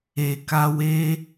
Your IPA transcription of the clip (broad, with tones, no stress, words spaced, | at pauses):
e˨ ka˧we˦